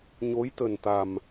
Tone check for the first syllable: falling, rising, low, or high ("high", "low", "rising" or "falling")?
rising